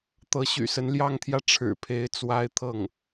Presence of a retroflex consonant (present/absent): present